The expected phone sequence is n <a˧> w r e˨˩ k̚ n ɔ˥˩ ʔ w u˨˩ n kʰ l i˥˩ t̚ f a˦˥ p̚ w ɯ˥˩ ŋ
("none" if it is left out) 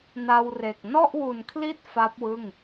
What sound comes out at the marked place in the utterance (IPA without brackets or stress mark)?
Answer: a˧